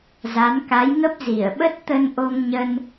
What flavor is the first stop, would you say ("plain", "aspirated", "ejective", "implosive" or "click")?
plain